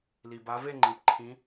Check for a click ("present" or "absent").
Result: present